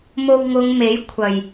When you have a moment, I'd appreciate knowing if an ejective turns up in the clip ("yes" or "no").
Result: no